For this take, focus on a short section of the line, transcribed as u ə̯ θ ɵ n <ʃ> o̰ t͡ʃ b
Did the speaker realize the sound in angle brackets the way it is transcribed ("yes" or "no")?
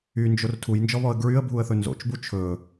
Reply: no